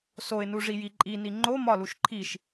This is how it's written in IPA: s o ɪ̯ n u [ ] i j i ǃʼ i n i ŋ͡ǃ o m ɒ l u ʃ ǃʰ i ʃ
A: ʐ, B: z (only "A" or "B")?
A